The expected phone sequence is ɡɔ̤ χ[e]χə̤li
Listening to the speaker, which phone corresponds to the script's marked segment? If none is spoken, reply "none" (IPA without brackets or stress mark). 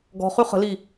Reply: y